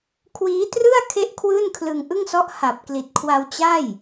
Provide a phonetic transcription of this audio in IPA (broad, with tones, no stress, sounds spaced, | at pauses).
kʰ w iː˦˥ t r ɯ˥˩ a̯ kʰ e˦˥ ʔ kʰ w ɯː˥˩ n kʰ l ɯ˧ ŋ ʔ ɯ˥˩ ŋ s ɔ˦˥ ʔ h a˨˩ p̚ k l i˨˩ t̚ kʰ w a˧ w t͡ɕ a˥˩ j